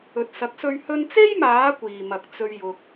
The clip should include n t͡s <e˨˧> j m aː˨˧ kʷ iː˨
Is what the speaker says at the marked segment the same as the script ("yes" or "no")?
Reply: no